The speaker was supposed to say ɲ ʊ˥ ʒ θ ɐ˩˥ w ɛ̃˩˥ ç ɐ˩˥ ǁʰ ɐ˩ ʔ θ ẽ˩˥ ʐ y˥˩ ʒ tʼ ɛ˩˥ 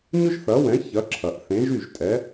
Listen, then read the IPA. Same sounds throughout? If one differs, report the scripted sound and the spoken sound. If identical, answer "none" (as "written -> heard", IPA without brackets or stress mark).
ʐ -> ʒ